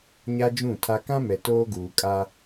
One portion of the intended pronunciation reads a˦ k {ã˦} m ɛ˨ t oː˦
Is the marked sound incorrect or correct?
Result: correct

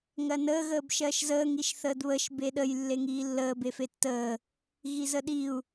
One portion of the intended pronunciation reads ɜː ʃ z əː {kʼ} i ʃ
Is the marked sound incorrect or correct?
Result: incorrect: ŋ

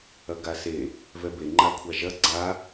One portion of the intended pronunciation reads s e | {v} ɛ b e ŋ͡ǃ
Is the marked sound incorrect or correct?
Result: correct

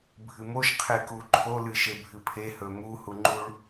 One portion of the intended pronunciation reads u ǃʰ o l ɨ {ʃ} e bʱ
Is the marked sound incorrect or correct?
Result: correct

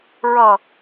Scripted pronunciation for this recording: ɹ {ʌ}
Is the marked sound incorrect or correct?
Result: correct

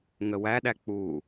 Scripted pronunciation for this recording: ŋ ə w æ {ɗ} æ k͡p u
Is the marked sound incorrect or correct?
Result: correct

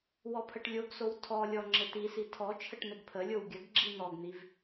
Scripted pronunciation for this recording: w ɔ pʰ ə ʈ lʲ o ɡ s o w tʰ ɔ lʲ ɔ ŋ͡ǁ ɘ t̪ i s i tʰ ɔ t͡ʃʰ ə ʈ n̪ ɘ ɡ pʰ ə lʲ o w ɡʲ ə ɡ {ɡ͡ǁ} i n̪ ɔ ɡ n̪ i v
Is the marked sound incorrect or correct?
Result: correct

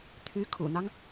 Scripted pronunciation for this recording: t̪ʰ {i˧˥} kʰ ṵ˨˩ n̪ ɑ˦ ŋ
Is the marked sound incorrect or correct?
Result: incorrect: y˧˥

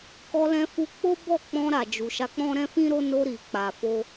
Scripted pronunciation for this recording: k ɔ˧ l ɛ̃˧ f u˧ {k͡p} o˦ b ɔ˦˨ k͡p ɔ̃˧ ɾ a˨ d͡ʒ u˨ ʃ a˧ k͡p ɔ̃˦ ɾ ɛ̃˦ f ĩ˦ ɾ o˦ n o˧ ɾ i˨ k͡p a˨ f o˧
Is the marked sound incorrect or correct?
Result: correct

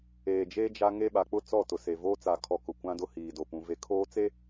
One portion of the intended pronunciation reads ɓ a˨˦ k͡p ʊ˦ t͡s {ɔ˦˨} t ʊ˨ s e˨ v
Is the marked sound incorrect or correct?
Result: correct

